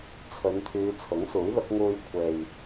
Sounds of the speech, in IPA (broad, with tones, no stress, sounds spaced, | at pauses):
t͡sʰ ɵ˨˧ n t̪ʰ yː˨˧ t͡sʰ ʊ˨˥ ŋ s uː˨˥ j l ʊ˨˥ k̚ ŋ uː˧ j kʷʰ e˨ j